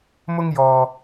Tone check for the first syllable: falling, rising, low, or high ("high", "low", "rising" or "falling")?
high